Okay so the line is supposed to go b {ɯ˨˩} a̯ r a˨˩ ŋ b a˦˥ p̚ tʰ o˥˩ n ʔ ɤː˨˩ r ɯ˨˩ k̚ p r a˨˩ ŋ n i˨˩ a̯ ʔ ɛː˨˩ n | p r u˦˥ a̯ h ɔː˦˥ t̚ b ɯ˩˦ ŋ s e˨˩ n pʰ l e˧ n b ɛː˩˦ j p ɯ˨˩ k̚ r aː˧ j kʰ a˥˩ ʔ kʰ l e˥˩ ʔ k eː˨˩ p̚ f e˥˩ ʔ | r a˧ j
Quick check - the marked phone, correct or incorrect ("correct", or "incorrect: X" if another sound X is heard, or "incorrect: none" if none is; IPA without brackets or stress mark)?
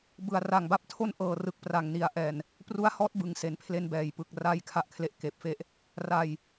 incorrect: ɯ˩˦